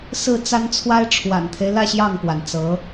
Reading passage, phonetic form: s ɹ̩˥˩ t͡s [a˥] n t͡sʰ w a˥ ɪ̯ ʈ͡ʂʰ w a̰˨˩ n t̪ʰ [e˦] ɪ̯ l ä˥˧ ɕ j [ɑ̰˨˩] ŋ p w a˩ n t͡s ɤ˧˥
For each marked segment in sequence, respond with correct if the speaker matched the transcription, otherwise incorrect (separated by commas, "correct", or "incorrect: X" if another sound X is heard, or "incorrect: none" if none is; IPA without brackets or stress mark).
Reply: correct, correct, incorrect: ɑ˥˩